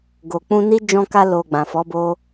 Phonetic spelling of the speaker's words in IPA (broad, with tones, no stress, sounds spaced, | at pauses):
ɡ o˨ k͡p ũ˧ n i˦ d͡ʒ ɔ̃˧ k a˧ l o˨ ɡ͡b ã˨ f ɔ˨˦ b o˦